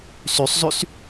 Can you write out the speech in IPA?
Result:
sysˤzˤys

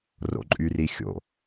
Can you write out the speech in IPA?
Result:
ro̰ǃʼyrixʲo̰

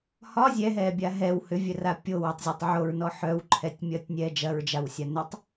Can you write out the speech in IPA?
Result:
hɒ zʲɛɦɛːbʲa ɦɛw hʏvʲœra pʲowɛtˤzʲœtˤ ʕoɹnɔ ħœwǃʰɛtʲmʲɐːtʲnʲɛː d͡ʒɐɹd͡ʒawsʲa nʏtˤ

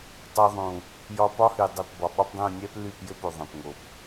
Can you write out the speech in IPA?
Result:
tˤɵ˧ðˤũ˨ | jɒ˧pɒ˦hy˨ dˤy˨pbɒ˨ɓɒ˦pdˤũ˦˨ nʲɛ˦ply˦˨p jɘ˦po˨ ðˤɛ̃˨pŋo˨p

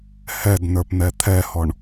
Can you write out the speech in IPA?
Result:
hɛdnə˞pn̪ɛ t̪ʰɛhɔɳ

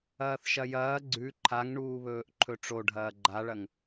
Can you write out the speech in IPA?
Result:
ɐːθʃɐjɐː ɡ͡ǀʉ ǃʰaŋɳuːβɵːʔ ǃʰɵʈ͡ʂoɖʱɐː ɡ͡ǃaɭɐŋ

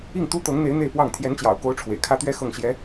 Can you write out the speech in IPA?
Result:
i˥˩ŋt̪u˥t̪ɤ˧˥ŋn̪e˧˥ɪ̯ n̪e˥˧ɪ̯pwɑ˥˩ŋ t̪ʰjɛ˧˥nt͡ɕjɑ̰˨˩ʊ̯ko˧˥ʊ̯ ʈ͡ʂʰwḛ˨˩ɪ̯kʰä˥t̪ɥɛ˥ xɤ˥˩ŋɕjɛ˧˥

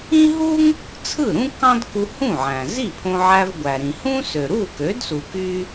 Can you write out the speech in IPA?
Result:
ĩ˥ɦu˥ŋ | t͡sʰɯ˥˩ɾũ˥ kɑ̃˥dku˧ hũ˥˩ʕæ̃˩ zi˥˩pʰõ˧ʕæ˧v ɡʷæ˩ɾĩ˩ hũ˥ sø˩ɾu˥˩kø˩˥dsu˩ ky˥

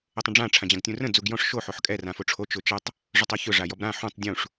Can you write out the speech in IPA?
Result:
ətˤə̃ɖ͡ʐã ʈ͡ʂʰãd͡ʑãɡtʲũrə̃ d͡zuɡjɔ̃ʂ ʃo ħoħkʼɛ rãfoʈ͡ʂʰo t͡ʃʊt͡ʃətˤ | ʐʊtˤoçʊ ʐajɔbɾã ħũtˤ dʲũʂ

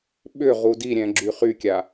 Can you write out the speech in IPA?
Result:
ɓʏ ʁudiɾʲɛ̃ ɡ͡ǁyχykʲa

